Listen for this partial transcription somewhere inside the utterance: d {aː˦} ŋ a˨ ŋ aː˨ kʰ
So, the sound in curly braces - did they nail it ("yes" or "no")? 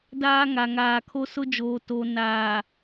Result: yes